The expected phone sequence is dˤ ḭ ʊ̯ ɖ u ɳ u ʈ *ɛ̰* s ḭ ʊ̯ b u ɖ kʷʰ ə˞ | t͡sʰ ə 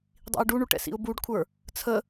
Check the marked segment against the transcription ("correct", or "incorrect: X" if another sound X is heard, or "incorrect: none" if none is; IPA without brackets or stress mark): correct